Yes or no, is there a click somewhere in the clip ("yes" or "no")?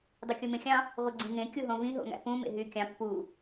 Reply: yes